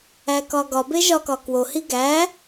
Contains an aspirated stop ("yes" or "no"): no